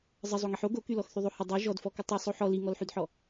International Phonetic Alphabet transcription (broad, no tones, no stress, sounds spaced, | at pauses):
zˤ ə zˤ o ŋ i ħ o ɡ o k y l ɔ x θ y ðˤ o h ə dˤ y ʒ ɔ d f ɔ k ə tˤ y sˤ o ħ ɔ l i ŋ ɔ l ħ y d ħ ɔ